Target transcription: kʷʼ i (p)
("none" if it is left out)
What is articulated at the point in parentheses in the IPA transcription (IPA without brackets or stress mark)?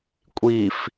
f